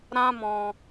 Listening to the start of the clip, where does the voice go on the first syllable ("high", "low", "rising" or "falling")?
high